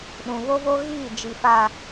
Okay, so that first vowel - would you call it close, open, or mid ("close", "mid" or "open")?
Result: close